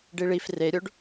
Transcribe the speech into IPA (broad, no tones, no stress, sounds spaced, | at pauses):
ɖ i ɭ i f r e ɾʲ o ɖ